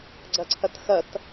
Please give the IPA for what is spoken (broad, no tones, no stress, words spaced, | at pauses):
ɡ͡ǀɐǀʰɐtxɐt